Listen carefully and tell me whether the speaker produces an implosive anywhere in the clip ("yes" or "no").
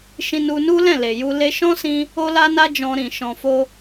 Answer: no